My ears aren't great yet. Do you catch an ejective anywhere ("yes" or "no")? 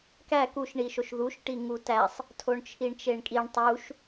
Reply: yes